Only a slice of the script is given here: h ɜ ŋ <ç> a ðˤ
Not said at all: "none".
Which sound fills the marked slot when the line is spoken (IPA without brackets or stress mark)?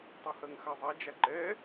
x